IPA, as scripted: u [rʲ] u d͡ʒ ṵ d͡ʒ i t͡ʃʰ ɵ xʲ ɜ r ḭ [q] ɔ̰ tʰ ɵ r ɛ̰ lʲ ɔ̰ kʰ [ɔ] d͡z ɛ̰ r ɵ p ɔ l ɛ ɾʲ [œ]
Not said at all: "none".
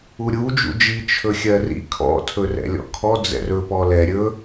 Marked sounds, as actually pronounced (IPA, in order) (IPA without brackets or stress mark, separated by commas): ɾʲ, kʰ, ɔ, ɵ